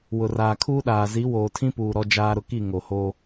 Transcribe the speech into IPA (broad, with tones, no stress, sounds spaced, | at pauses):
w ʊ˨ r aː˨ kʰ uː˦ ɗ aː˨ z i˨˦ w oː˨ tʰ ĩ˦ p uː˨ ɾ ɔ˦ d͡ʒ aː˦ ɾ ʊ˦ k i˦˨ ŋ o˨ h o˦